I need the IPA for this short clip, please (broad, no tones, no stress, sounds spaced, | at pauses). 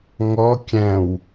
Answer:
ŋ ɔ kʲ æ̃ w